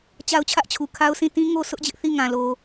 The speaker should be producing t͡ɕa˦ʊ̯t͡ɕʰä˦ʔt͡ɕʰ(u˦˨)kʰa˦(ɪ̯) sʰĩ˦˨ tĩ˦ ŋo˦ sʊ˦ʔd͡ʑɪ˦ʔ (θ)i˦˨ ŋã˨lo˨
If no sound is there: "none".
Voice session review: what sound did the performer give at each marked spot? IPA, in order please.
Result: u˨, ʊ̯, θ

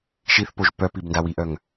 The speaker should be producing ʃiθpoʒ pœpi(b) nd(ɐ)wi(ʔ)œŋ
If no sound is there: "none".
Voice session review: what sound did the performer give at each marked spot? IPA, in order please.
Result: b, a, ʔ

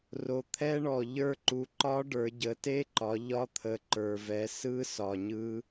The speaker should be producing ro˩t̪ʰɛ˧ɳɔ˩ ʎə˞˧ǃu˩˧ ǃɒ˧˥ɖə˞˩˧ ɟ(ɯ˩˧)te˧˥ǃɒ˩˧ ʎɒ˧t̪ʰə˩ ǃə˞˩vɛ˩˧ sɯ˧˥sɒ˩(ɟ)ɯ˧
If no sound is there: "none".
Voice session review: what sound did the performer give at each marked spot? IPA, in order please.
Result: ə˩˧, ɲ

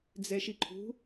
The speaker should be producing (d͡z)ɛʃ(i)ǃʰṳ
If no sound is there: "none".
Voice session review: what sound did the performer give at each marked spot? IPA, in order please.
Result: d͡z, i

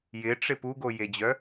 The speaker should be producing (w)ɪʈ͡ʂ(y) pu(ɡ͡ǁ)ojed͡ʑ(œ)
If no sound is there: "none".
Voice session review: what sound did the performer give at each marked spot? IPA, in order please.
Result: j, ɪ, ɡ, œ

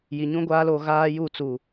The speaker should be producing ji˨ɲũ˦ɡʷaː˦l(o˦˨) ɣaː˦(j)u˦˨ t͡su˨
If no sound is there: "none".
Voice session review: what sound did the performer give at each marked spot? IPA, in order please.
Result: o˦˨, j

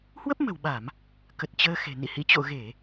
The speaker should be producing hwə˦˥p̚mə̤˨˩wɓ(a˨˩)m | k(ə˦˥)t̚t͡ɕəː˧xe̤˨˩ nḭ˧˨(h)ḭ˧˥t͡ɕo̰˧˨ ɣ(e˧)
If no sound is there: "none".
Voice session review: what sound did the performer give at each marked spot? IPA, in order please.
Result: a˧˩˨, ə˨˩, h, e˧˩˨

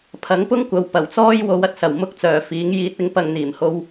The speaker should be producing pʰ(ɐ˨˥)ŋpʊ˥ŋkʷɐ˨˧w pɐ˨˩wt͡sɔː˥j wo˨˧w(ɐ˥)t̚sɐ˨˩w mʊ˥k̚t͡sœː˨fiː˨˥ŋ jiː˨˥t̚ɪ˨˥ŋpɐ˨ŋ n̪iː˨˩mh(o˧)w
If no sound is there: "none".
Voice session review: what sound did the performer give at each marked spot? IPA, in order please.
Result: ɐ˨˥, ɐ˨, o˧

